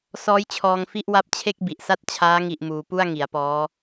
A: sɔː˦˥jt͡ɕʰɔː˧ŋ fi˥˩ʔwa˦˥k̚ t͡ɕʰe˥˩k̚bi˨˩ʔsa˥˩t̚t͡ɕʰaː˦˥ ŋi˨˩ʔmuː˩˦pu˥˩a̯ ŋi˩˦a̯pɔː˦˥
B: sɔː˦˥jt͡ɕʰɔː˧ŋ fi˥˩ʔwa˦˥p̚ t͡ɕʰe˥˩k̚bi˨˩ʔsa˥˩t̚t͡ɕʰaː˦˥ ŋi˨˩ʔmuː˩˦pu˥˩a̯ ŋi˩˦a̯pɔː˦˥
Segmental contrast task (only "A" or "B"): B